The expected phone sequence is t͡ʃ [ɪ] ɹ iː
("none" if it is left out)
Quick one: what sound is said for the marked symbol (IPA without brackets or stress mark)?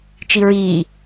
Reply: i